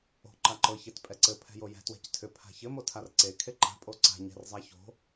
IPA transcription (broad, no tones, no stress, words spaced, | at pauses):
o̤ ǃaǃɤ çetpʼɛǀɘ pʰɛ̤jojɛ̤ twɛ̤ctʰʏ pʰa̤çɘ motʰarǀe kʰeǃa̤ pʼoǀa̤ ɲɛ̤rzˤaço̤